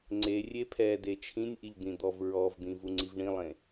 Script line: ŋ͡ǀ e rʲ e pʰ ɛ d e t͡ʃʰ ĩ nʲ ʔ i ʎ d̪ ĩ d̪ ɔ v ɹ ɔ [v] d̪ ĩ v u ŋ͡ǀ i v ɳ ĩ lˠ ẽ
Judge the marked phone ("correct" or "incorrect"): correct